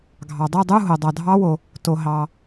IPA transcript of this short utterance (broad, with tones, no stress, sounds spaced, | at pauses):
ɡʱ ɑ˩ dˤ o˦˨ dˤ u˧˥˧ ɦ o˩ dˤ ɑ˩ dʱ ɑ˦˥ w o˩ | t o˩ ɦ ɑ˩